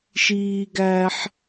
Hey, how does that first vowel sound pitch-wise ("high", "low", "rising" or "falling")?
high